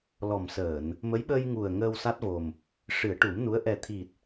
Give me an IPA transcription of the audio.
l ɔ˨˩ m s əː˨˩˨ n | m ə˧˥ j ɓ ə˧ j ŋ u˨˩ ə̯ ŋ əː˧ w s a˦˥ t̚ v o˨˩ m | ʂ ɨ˨˩˦ ə̯ ʈ u˨˩˦ m n u˧˥ ə̯ ʔ ɛ˨˩ t̪ʰ i˨˩ t̚

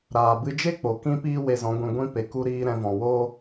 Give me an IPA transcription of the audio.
ɾ aː˨ b ɨ˧ d͡ʒ e˦ k͡p o˨ k ĩ˦ p iː˦ w e˧ z ɔ̃˨˦ ɡʷ ĩ˧ ɡʷ ĩ˧ p e˨ k u˧ ɾ iː˧ ɾ ɛ̃˧ v ɔ̃˨ w o˦

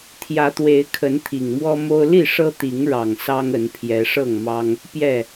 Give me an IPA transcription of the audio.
t̪ʰ j ä˨˦ t̪ w e˨˦ ɪ̯ kʰ ə˨˦ n t̪ʰ i˨˩ ŋ m w ɔ˦ m o˦ ʊ̯ l i˥˨ ʂ ɤ˦ t̪ i˨˦ ŋ ɻ ɑ˨˩ ŋ s ɑ˦ ŋ ə˨˦ n pʰ j ɛ˨˦ ʂ ɤ˥˨ ŋ m ɑ˦ ŋ | p j ɛ˥˨

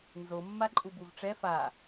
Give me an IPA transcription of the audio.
n z o mː a ǃʼ u b u v ʈ͡ʂ ɛ f a

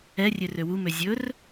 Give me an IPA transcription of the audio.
ɛ rʲ ø r ø w u m ø zʲ ɵ r

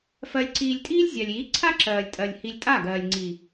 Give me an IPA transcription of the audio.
f ɜ˧ lʲ ǀ iː˧ lʲ tʼ iː˦ lʲ zʲ a˨ lʲ iː˨˦ ǀʰ a˦ ǁ ɜː˨ lʲ tʼ ɜ˨ lʲ h i˧ lʲ tʼ a˦˨ ɡ ɜː˨ lʲ ŋ͡ǀ i˨

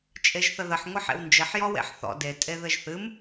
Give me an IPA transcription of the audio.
t͡ʃʼ e ʒ θ ə ð ə ħ ŋʷ ɨ ħ ḛ w n d͡ʒ ɘ ħ j ɔ w ḛ ħ θ ɔ̰ d e tʼ e ð ɘ ʒ θ ɨ m

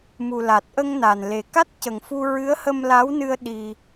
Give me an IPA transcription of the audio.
m u˨˩ l a˨˩ t̚ ʔ ə˧ ŋ n a˨˩ n l e˨˩ k a˦˥ t̚ c ə˨˩ ŋ f u˧ ɹ ɨ˧˥ ə̯ h ə˧ m l a˧˥ w n ɨ˧ ə̯ ɗ i˧

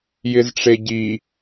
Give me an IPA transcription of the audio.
j ɪ z ʈ͡ʂ e ɟ i

